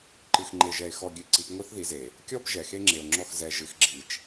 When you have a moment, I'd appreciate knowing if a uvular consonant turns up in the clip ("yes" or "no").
no